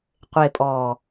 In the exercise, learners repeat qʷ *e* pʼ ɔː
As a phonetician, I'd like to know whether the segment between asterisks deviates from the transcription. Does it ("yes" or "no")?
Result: no